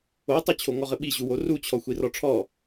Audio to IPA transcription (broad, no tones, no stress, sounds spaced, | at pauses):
o tˤ u t͡ɕʰ o ŋ ɔ ʁ ɘ ɓ i ʑ u w o r u t͡ɕʰ ɔ xʷ i r ɔ ʈ͡ʂʰ ɔ